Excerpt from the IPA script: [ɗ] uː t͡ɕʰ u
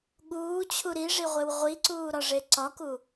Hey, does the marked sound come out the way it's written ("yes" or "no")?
no